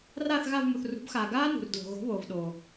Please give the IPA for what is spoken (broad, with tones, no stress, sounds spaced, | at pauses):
r aː˦˨ θ ɣ a˦˨ v m u˩ θ r ṳ˩˥ b x aː˩ ɡ aː˦˥ n ṳ˩ r d l o̤˩ ɣ o̤˩˥ β oː˩ v ɗ oː˩